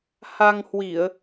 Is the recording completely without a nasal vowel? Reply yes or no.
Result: yes